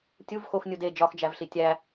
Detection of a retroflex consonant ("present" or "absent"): absent